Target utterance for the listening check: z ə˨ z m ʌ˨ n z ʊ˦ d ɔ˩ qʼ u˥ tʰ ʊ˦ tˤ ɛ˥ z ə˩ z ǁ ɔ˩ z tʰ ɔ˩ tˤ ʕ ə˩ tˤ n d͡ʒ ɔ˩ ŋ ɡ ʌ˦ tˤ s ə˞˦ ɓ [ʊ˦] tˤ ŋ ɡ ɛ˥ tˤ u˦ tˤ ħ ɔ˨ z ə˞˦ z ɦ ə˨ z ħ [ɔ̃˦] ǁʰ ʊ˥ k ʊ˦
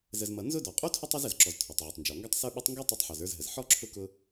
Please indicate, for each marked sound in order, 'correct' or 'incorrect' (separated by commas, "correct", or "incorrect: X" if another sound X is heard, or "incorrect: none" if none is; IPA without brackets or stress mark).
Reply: correct, incorrect: ɔ˦